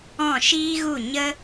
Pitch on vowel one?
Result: falling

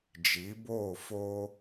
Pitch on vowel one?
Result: rising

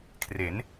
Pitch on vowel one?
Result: rising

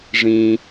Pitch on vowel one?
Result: low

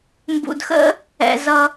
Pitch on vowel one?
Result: low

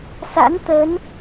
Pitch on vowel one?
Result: rising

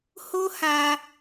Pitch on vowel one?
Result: high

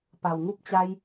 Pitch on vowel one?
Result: low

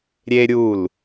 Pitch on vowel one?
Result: high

